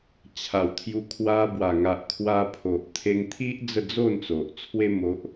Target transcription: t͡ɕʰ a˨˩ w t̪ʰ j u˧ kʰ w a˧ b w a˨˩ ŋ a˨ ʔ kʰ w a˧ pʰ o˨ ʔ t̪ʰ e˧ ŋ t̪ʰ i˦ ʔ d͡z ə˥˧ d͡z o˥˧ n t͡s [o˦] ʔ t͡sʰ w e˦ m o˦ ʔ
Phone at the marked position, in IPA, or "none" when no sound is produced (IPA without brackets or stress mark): o˨